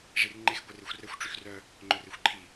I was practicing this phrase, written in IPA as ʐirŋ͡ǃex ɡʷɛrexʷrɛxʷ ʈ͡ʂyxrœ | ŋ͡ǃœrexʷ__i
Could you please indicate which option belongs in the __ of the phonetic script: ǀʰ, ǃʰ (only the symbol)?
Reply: ǃʰ